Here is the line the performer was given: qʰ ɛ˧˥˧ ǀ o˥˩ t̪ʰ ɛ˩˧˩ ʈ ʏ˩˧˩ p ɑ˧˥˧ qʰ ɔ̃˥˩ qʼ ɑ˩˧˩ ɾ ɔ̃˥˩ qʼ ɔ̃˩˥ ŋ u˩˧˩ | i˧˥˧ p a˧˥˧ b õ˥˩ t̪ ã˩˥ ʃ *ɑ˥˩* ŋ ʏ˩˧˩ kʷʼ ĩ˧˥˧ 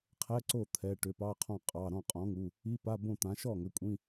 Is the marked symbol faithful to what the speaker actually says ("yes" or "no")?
no